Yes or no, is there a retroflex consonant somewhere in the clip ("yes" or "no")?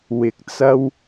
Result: no